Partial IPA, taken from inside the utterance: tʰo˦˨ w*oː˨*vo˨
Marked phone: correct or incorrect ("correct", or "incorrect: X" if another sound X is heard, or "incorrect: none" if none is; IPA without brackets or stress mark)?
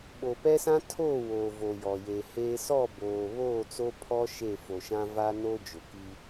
correct